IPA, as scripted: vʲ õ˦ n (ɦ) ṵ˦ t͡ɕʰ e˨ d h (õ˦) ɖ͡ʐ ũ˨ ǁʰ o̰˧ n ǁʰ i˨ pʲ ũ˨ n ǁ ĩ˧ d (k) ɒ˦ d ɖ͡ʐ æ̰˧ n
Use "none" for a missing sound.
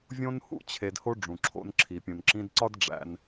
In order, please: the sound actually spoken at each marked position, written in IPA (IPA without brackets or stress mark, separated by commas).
h, o˦, ǀ